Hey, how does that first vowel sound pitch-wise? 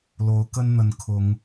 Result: rising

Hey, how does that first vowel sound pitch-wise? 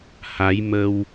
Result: rising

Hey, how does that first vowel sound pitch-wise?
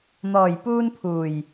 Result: low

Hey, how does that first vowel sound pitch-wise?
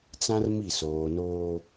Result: high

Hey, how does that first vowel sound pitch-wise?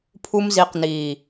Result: high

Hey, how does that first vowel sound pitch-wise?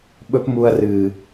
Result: high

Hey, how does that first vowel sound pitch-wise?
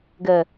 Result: low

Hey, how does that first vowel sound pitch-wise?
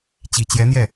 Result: low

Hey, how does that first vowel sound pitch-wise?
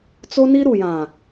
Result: high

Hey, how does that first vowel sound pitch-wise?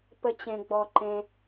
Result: high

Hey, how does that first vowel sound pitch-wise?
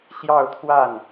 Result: falling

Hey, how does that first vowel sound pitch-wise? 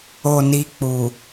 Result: low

